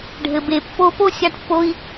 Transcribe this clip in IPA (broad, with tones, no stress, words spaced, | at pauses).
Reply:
ɖʱɘ˨be˨ pːo˧po˦sʲa˧ʈpːo˧i̯